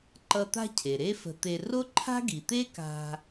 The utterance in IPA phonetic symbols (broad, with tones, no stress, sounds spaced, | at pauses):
ǃ ʌ˧ t̪ a̤˥ cʰ e˩ ɾ e˥ f ə̤˧ t̪ e˧ r o˥ ǃʰ a̤˥ ɡ i˩ t̪ e˥ k a̤˧